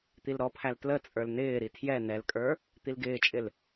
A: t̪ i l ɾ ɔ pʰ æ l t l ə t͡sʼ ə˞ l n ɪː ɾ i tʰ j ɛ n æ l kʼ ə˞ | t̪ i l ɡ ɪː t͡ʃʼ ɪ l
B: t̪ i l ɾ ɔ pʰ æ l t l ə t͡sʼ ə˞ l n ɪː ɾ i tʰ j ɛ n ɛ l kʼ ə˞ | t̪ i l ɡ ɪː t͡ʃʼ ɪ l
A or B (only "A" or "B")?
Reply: B